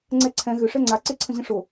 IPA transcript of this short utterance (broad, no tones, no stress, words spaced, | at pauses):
ŋ͡ǀɛǀʰɛ̃ ɣʏ ʂɛŋ͡ǀa ǀeǀʰə̃ʑə̃ʂo